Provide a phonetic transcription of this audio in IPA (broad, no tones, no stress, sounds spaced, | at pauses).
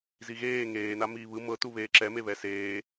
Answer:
z i ɣ eː ŋ eː n a m iː β ɯ m ɤ t u β eː ǁ ɛ m e β ɛ s eː